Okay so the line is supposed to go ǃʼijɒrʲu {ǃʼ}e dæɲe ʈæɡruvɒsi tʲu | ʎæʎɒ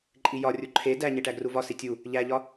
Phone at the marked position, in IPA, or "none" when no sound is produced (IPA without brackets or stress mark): ǃʰ